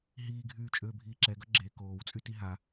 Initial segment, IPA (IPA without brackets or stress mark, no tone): ɦ